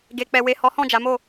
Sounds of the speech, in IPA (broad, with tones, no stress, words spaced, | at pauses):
ɡe˨k͡pɛ˨ we˨hɔ˨˦ hɔ̃˦˨d͡ʒa˨˦mo˦˨